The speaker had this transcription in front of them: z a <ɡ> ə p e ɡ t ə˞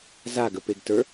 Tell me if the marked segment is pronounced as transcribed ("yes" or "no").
yes